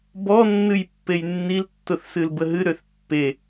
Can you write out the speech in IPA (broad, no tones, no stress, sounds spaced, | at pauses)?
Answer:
b ɔ nː ɨ j pː e j nː i l tː ʊ θ s ɨ l b ə ɦ ɨ ɾ ø θ pː e